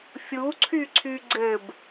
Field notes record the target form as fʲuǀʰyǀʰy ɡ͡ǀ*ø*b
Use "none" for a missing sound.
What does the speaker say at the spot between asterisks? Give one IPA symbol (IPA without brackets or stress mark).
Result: ɘ